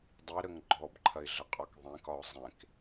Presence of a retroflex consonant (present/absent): absent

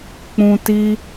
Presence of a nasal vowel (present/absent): present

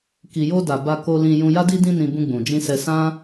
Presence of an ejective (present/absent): absent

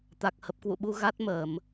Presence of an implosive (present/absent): present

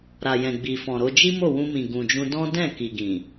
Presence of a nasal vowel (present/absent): present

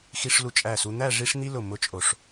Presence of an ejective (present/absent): present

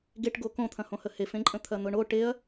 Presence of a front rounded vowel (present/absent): absent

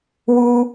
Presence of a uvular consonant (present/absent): absent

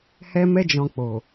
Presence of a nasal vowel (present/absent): present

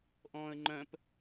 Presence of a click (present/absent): present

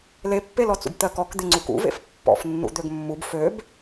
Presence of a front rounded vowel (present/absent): present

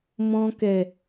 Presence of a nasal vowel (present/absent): present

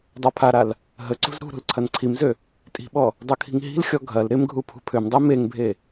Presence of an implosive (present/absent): present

